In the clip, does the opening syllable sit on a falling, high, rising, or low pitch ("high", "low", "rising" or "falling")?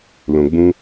low